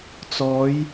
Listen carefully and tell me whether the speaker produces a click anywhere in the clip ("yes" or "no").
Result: no